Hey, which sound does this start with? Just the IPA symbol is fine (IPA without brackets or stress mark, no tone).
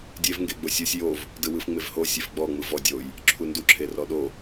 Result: dʲ